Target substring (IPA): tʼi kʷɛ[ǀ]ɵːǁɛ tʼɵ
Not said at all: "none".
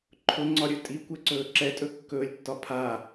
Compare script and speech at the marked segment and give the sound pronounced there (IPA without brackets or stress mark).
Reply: ǀ